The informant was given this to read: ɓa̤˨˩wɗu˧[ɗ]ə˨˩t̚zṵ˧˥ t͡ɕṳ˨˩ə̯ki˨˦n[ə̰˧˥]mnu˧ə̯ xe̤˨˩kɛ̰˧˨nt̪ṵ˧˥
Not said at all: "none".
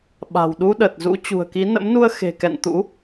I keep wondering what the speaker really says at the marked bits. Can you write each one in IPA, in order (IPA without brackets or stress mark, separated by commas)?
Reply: ɗ, ə̰˧˥